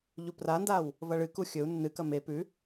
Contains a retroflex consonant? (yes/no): yes